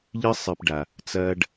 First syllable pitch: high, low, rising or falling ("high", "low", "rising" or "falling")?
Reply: high